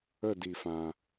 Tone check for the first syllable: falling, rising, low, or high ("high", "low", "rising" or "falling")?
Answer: falling